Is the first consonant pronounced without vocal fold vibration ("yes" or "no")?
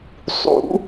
yes